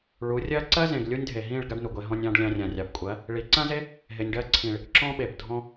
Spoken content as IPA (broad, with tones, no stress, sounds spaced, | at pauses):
ɭ u˨˦ rʲ ɜ˦ ǀ ɜ˦ z ẽ˨ ɡ lʲ u˦ nʲ dʱ e˨ ɦ ĩ˦˨ ɭ ɡ a˦ ɖ n u˨ ɡʷ e˧ ɦ ɔ̃˧ nʲ ɑ̃˧ ɖ lʲ ɑ̃˧ rʲ ã˨ rʲ ɑ˨ b kʷʼ ɜ˨˦ | ɭ i˨˦ ǀ ã˦ z e˦ | ɦ e˨ nʲ ɖ ɜ˧ ǀʰ ĩ˨ ɭ | ǁ ɔ̃˦ ɓ e˨ b dʱ ɔ̃˧